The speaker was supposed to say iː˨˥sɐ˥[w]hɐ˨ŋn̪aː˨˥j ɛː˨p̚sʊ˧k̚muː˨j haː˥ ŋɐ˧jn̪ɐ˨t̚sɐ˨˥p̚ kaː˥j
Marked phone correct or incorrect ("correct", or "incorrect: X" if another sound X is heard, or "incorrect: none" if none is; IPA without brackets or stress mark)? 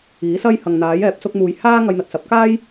incorrect: j